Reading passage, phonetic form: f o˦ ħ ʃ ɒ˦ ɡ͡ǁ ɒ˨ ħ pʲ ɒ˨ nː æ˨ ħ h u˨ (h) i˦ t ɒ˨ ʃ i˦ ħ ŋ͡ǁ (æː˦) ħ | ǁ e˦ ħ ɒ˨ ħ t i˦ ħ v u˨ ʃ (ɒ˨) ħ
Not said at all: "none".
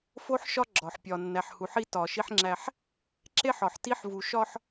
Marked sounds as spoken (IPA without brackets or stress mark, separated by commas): ħ, æ˦, ɒ˦